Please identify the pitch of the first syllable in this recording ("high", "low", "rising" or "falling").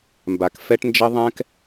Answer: low